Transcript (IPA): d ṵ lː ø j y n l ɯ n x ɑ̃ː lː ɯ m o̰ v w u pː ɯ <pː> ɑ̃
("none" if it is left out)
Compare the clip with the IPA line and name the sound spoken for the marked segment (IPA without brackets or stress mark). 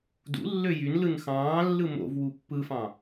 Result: f